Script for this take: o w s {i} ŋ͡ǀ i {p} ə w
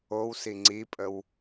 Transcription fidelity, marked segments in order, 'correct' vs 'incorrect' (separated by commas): correct, incorrect